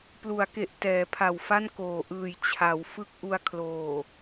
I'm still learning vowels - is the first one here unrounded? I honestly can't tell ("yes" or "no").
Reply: no